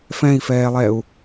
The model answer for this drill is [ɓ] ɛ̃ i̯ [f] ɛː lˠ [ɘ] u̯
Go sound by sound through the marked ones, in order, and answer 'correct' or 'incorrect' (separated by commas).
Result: incorrect, correct, incorrect